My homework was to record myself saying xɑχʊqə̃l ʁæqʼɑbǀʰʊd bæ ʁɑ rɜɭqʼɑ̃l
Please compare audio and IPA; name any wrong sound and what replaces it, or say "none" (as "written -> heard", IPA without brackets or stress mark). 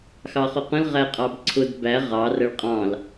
none